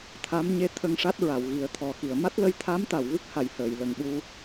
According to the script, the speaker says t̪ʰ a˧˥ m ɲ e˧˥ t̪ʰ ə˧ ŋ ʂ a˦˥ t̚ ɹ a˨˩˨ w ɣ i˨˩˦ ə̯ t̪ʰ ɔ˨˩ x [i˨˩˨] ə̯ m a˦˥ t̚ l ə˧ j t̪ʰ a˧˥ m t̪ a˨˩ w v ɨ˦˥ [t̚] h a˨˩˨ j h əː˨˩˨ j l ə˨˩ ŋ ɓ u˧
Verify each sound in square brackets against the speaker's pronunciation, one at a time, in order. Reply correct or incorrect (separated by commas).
correct, incorrect